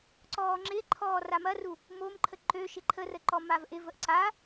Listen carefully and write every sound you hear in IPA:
ǀɔːŋ͡ǁɪǃʰɔː ramɐru | momǃʰə ǃø ʃɪǃʰərə ǃɔmavʔɪvəʔ ǀa

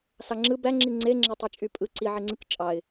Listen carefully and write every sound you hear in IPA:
sɑŋ͡ǁɯ bæ ŋ͡ǁiŋ͡ǀe ŋ͡ǁetˤet͡ʃʼypʼɯ ǀi ʕeŋ͡ǀɯk t͡ʃʼɑɪ̯

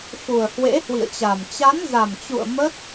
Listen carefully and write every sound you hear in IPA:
xu˨˩ə̯hwḛ˧˥hwḭ˧˨ə̯t͡ɕa˨˩m t͡ɕa˨˦nza˨˩mt͡ɕṵ˧˨ə̯ mə˦˥t̚

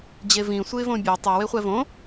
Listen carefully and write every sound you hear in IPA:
d͡ʑevĩ sʷɯɪ̯võbʲe tˤʌ weχʷɛvõ

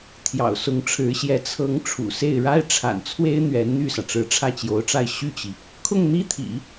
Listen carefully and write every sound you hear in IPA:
t̪ʰjɑ̰˨˩ʊ̯ sʊ˧˥ŋʈ͡ʂʰɻ̩˧˥ɕjɛ˧˥ t͡sʰɤ˧˥ŋ ʈ͡ʂʰṵ˨˩se˥˩ɪ̯ ɻa˥ɪ̯ʈ͡ʂʰa̰˨˩nt͡sʰwe˥ɪ̯ n̪ɥɛ˧˥nn̪y˥˩sä˩ ʈ͡ʂɻ̩˧˥ʈ͡ʂʰä˥˩t͡ɕjo˧˥ʊ̯ʈ͡ʂa˥˧ɪ̯ ɕy˥˩t͡ɕi˩ | kʰʊ˥˩ŋn̪i˥t̪ʰḭ˨˩˦

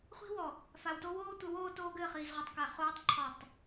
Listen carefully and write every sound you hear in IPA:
χʷi̤˦wɔ˨ | fa˨wto˦woː˦tʷɘ˨˦w oː˦toː˦ɡɘː˦˨χ iː˨zʁʷi˨tˤkæ˨ χoː˦tˤ ǃʰɔ˦˨tˤ

